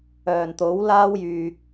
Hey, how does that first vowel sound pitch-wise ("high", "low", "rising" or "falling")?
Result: low